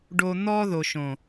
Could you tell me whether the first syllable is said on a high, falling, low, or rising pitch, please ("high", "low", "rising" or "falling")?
high